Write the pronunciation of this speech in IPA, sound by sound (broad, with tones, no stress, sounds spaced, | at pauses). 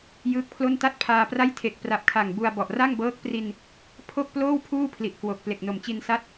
j ɯː˦˥ k̚ pʰ l o˥˩ n t a˥˩ t̚ pʰ aː˧ p r a˥˩ j tʰ e˨˩ k̚ p r a˨˩ p̚ kʰ aː˨˩ ŋ b u˧ a̯ b ɔ˨˩ ʔ r a˥˩ ŋ b ɤː˦˥ k̚ p r i˧ n | pʰ o˥˩ k̚ p l oː˥˩ w pʰ uː˥˩ pʰ l i˨˩ ʔ k w o˨˩ k̚ p l e˨˩ k̚ n o˨˩ m t͡ɕ i˧ n s a˥˩ t̚